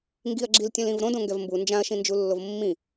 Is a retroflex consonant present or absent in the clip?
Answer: absent